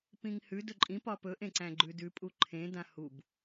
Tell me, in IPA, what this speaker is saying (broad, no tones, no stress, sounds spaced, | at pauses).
p ĩ ŋ h ʉ d ɵ ǃʼ ĩ p ɒ p ɵ ʔ ẽ ǀ æ̃ ɡ͡ǃ ʉ d ʉ pʼ u ǃʰ ẽ d ã h u b